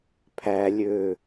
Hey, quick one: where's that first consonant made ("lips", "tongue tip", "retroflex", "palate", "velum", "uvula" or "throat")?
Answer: lips